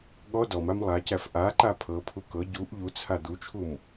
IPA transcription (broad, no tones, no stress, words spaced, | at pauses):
ɠɔ dɔmam lˠacæf ʔaǃa pʰɤpʰu kɤ ɟuʔ ʎut͡sʰa d̪ut͡ʃʰum